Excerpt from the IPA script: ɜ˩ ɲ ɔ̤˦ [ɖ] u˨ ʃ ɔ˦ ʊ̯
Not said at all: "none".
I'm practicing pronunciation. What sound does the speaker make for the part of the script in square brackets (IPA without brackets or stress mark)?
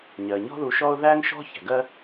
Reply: ð